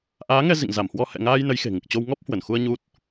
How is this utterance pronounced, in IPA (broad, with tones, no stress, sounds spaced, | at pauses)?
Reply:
ʔ aː˨˦ ŋ ɛ˧ z ḭ˧˨ ŋ z a˧˩ m h w ɔ˧ h ɛ̰˧˨ ŋ aː˧ j n ə˨˦ j x e̤˨˩ ŋ ɨ˨˩ k̚ t͡ɕ o˧ w ŋ ɔ˦˥ p̚ h w ə˧˩ n x u˧ ə̯ ɲ u˦˥ t̚